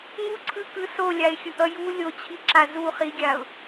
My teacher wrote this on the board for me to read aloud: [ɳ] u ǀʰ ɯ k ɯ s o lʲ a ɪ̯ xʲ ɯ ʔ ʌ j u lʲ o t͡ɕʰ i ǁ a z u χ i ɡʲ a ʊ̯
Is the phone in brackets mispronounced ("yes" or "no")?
yes